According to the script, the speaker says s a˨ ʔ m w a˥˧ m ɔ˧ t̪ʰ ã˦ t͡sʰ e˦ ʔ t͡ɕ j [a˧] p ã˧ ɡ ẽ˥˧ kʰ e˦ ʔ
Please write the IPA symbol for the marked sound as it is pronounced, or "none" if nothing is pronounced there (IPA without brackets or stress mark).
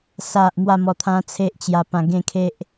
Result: a˧